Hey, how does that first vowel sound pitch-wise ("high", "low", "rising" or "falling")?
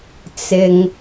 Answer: low